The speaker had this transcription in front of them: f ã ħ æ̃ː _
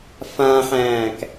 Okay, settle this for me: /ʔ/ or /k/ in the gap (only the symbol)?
k